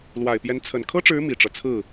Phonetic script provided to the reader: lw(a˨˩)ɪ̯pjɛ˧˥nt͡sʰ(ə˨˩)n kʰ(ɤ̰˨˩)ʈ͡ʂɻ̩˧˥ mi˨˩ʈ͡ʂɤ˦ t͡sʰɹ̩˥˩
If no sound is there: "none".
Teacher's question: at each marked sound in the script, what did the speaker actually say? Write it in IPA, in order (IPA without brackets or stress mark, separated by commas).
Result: a˨˩, ə˨˩, ɤ˥